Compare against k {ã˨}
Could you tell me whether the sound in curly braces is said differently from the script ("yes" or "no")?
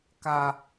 yes